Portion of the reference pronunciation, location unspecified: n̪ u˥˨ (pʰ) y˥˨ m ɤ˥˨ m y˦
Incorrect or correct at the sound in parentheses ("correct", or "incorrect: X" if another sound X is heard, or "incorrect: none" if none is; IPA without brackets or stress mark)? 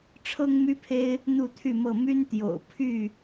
incorrect: t̪ʰ